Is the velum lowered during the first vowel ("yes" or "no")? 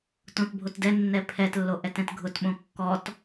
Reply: yes